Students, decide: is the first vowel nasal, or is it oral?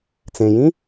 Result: nasal